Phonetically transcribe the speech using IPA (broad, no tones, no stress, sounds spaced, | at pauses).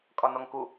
kʼ ɒ n ɔ ŋ k u